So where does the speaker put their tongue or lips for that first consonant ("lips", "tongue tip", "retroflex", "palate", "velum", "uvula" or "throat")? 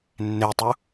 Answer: tongue tip